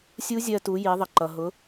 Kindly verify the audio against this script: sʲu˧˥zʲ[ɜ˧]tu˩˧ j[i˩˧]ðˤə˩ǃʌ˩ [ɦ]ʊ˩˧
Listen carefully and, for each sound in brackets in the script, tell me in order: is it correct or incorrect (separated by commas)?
correct, correct, correct